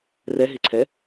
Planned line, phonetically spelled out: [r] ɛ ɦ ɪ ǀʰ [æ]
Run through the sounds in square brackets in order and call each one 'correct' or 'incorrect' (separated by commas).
correct, incorrect